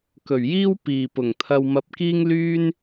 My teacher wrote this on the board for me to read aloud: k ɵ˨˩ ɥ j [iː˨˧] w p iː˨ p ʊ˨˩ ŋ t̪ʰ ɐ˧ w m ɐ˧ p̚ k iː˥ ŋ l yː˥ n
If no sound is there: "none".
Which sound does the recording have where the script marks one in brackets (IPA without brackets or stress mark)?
iː˥